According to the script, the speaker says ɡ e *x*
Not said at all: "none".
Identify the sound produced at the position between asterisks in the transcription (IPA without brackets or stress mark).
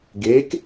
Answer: k